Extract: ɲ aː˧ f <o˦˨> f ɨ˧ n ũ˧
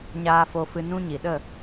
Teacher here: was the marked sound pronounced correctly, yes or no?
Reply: no